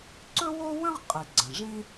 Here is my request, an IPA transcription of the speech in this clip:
ǀ ɵ˥ w o˥ w ə̃˥ ʁ qʼ i˩ ɡ͡ǀ ə̃˩ ʐ ĩ˥

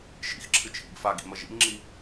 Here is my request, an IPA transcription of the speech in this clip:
ʃ ḭ x ǁʰ ɨ t͡ʃʰ ḭ ɡ f a ɡ ḭ m ɐ ʒ ḭ m ŋ͡ǁ i

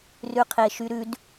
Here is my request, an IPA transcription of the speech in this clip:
r ʉ qʰ e ʃ y ɾ ʉ d

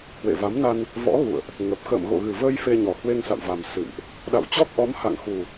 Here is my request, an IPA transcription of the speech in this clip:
h w ḛ˧˨ v a˨˦ m n a˧ n | v ɔ̰˧˥ ɣ ṵ˧˨ ə̯ ʔ | ŋ ə˨˩ p̚ x ə̰ː˧˨ m ɣ o̰˧˨ ɣ ɨ˨˩ v əː˧ j f e˧ ɲ ɔ˨˩ h w e˧ ŋ s a̰˧˨ w v a˨˩ m s ɨ̰˧˨ m ʔ | ɗ a̰˧˨ w t͡ɕ ɔ˦˥ k̚ ʔ ɔ˨˦ m h a̰˧˨ ŋ x u˨˩

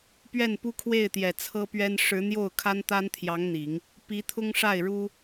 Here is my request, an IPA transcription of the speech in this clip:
p ɥ ɛ˥˩ n p u˥ kʰ w e˥˩ ɪ̯ t̪ j ɛ˨˩ t͡sʰ ɤ˥ p ɥ ɛ˥ n ʂ ɻ̩˧˥ n̪ j o˥˩ ʊ̯ kʰ a˥ n t̪ a˥ n t̪ʰ j ɑ˧˥ ŋ n̪ i˨˩˦ ŋ | p i˧˥ t̪ʰ ʊ˥ ŋ ʂ a˥˩ ɪ̯ ɻ u˥

